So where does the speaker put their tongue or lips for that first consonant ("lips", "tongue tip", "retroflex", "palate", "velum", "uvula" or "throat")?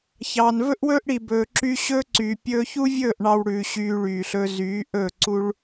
palate